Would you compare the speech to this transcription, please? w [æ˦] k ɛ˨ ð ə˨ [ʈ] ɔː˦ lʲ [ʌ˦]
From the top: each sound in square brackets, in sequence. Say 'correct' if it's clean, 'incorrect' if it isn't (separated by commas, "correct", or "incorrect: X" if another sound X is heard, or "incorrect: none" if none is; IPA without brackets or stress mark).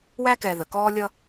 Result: correct, incorrect: k, correct